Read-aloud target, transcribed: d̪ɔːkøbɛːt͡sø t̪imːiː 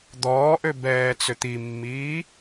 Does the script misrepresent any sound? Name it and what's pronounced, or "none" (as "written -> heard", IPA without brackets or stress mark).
k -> ʔ